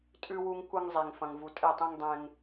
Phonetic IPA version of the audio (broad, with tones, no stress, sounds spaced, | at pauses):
tʼ ʉ˦ w u˦ ŋ kʷ ɐ˦ ŋ zˤ e˨ ŋ f ɐ̃˨ ŋ v u˨ tʼ e˦˨ tˤ ĩ˦ ŋ dˤ ẽ˦ ŋ